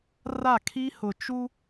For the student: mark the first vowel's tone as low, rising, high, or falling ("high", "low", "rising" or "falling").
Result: falling